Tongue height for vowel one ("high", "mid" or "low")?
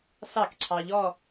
low